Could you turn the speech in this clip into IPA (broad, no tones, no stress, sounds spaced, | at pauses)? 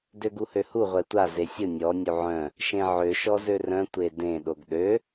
d ø ɡ u h ø h u ʁʷ ɛ tʷ a z e sʲ ʊ nʲ ɔ nʲ u ʕ œ̃ | ʃ ẽ ʕ ø ʃ ɔ z ø r œ̃ tʷ e d ẽ ɗ o ɡ ɗ ø